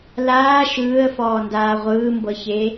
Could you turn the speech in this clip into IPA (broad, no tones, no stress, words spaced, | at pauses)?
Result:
laː ʃɯːə̯fɔːndaː ʁʷɯːmbɤçe